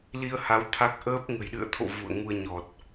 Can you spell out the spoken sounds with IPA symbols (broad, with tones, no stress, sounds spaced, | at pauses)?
l i˧ ə̯ h a˨˦ w t̪ʰ a˦˥ k̚ ʔ əː˦˥ p̚ ŋ ə̤˨˩ j ɗ ɨ̰˧˨ ə̯ t̪ʰ o̰˧˨ v ṵ˧˨ ə̯ ŋ u˧ ə̯ ɲ ɔ˨˩ t̚